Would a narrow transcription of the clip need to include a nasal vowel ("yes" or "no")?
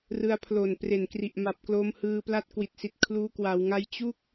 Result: no